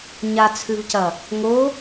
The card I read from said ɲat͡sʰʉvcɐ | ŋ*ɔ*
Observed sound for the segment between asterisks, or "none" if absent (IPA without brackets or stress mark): o